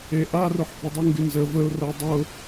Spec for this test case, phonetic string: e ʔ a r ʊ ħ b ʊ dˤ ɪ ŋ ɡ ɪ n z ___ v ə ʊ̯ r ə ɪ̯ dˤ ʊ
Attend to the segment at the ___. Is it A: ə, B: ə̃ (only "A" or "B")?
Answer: A